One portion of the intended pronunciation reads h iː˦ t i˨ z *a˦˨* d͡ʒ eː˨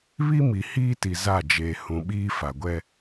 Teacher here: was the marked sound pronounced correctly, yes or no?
yes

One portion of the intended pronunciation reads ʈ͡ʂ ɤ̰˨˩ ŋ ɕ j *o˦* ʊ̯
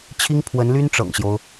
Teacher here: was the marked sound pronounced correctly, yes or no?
yes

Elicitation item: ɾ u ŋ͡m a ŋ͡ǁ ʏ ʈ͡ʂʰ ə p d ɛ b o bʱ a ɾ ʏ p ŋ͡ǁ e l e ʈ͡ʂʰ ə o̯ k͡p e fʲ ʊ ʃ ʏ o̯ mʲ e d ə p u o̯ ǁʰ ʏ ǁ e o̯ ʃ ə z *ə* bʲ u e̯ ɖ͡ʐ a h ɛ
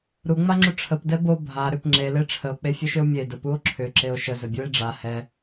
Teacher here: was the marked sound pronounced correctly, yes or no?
yes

